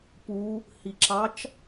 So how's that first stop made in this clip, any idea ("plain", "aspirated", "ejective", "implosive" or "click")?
plain